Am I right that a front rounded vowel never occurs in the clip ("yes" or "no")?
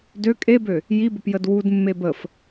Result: no